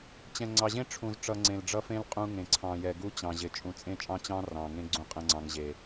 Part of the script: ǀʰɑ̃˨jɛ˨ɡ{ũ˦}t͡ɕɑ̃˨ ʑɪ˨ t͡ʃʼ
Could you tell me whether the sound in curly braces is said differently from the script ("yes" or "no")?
yes